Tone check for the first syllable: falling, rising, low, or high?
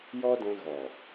high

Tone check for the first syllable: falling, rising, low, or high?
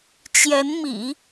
rising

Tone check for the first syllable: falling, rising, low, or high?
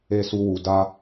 high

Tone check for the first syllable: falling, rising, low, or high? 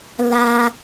low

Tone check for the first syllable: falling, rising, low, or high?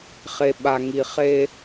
low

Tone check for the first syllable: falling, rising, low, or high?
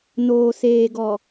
low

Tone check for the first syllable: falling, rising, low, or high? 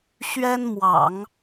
high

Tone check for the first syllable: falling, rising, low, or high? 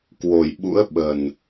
low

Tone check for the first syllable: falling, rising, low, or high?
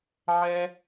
high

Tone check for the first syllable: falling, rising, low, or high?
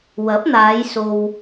rising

